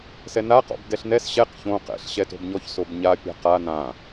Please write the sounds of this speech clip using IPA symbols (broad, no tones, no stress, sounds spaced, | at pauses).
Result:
s ɛ n a q ɔ̰ b d ɛ ɬ n ɛ s ɕ ɛ q ç õ q ɛ̰ ɬ ɕ ɛ t o̤ b ɲ ɔ ç s o b ɲ a pʲ a̤ q a n ã